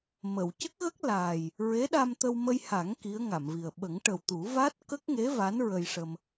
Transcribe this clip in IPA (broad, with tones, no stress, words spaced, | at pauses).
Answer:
mə˨˩˨w cə˦˥k̚ɣə˦˥k̚ laː˨˩j | ɹe˧˥ɗa˧mt̪ə˧w mə˧jha˨˩˦ŋ ki˧˥ə̯ŋa˨˩˨mvi˨˩ə̯ ɓə˨˩˦ŋʈə˨˩wt̪u˨˩˦ va˦˥t̚kə˦˥k̚ŋe˧˥ va˧˥n ɹə˧jʂə˧m